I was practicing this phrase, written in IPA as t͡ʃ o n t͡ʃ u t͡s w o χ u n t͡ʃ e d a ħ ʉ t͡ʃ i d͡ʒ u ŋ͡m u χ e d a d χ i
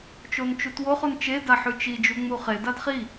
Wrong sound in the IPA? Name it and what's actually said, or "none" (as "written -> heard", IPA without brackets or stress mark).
t͡s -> t